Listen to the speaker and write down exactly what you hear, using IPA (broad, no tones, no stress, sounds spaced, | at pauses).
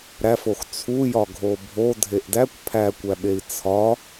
ɾ æ f o x t͡sʰ u j ɒ ɡʱ o bʱ o dʱ e ʔ d æ kʷ pʰ æ kʷ æ ɓ e i̯ t͡sʰ ɒ